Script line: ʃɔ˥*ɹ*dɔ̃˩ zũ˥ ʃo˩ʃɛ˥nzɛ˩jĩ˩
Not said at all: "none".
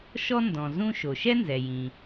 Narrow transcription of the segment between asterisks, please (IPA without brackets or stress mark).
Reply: n